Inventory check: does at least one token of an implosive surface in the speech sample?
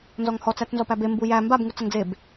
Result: no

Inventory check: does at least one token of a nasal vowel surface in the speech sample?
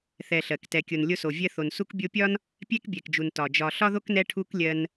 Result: no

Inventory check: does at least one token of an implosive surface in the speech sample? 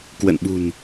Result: yes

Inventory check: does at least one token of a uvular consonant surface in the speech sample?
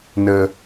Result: no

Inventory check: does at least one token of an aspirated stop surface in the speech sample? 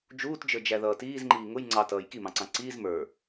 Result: no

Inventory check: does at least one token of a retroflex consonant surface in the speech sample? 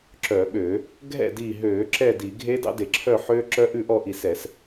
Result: no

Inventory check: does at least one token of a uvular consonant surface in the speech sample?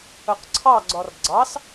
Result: yes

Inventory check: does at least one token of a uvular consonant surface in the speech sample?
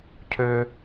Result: no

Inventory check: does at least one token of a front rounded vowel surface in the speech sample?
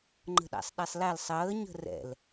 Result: no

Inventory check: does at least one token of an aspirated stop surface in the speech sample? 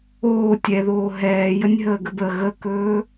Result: no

